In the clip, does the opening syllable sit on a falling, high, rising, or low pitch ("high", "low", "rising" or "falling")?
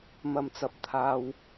low